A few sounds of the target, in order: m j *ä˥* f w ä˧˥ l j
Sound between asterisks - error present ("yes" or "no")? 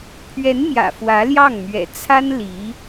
yes